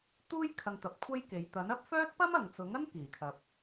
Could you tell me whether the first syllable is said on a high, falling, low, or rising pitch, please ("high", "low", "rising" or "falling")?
high